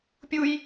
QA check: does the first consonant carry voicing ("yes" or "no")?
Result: no